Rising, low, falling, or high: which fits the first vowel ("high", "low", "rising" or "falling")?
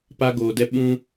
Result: high